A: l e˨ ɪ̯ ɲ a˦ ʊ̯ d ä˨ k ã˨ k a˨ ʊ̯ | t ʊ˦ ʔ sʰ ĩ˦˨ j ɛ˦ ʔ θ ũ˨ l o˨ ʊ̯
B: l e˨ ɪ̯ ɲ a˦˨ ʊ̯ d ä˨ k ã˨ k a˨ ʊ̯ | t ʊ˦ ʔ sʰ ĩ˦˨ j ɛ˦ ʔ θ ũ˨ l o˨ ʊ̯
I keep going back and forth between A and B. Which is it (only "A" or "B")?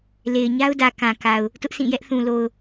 A